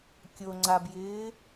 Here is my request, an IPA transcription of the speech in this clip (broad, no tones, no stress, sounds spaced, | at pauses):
kʲ o ŋ͡ǀ a b j ɪː